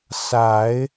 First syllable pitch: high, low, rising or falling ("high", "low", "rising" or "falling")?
low